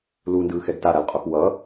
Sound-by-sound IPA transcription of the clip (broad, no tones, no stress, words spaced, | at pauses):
lundɯːxɛɡ taɾalqʼox wʌ